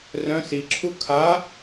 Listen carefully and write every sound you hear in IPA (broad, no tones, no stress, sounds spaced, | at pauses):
r œ̃ s i ǁʰ u kʰ a